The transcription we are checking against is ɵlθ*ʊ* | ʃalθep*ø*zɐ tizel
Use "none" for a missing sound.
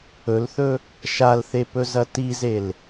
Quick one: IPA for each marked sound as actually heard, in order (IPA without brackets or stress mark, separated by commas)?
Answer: ɵ, ɵ